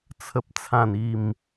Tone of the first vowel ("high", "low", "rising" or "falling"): low